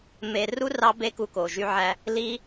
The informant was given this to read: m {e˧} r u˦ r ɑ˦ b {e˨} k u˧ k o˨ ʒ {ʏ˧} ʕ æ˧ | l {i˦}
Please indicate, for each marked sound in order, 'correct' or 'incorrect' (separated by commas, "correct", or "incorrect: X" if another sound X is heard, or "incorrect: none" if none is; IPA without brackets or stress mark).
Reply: correct, incorrect: e˦, incorrect: y˧, correct